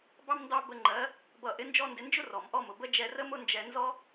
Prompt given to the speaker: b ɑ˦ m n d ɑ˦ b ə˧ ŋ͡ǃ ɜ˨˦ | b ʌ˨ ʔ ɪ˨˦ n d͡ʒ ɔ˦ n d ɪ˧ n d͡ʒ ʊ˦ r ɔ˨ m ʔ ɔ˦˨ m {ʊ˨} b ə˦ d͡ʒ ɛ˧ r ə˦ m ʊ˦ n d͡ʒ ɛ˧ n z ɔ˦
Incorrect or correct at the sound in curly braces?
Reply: correct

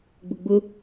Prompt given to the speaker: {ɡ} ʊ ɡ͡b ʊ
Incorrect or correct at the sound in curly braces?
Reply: incorrect: ɡ͡b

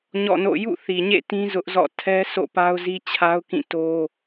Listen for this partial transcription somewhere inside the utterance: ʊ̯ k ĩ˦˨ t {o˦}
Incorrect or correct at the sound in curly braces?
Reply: correct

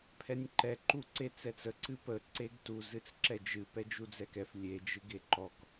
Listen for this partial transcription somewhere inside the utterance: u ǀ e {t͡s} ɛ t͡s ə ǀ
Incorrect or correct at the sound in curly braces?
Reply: correct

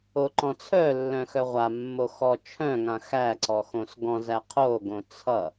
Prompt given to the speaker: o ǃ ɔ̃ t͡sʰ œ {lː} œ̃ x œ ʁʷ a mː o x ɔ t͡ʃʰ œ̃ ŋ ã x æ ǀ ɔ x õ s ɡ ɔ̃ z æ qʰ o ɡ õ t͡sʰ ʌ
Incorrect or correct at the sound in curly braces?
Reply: correct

